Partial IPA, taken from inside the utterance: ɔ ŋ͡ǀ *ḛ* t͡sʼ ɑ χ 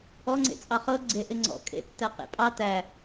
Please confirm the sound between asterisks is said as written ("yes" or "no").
yes